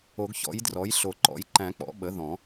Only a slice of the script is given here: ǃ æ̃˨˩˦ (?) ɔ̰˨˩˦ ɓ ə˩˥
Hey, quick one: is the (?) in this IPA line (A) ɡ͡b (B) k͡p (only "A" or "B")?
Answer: B